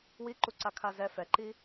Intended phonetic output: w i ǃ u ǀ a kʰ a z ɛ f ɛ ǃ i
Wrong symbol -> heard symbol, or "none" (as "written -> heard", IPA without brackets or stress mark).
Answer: none